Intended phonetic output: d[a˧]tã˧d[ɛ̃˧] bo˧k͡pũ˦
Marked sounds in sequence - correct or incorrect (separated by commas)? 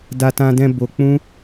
correct, correct